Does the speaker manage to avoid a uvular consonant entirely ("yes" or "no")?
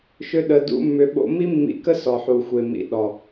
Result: yes